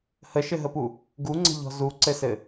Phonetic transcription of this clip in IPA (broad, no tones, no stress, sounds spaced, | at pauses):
h ə ʃ ɘ ɦ ə p u | ɡ u ŋ͡ǀ ə̤ ʎ ɔ̤ z u ǀ ɘ s ɘ